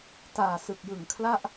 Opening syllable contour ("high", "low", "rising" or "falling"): low